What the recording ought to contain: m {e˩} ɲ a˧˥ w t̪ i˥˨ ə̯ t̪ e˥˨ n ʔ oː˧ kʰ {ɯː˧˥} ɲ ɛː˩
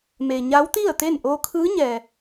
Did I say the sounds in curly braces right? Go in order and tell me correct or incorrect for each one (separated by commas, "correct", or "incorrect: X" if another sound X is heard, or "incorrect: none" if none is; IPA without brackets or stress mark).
correct, correct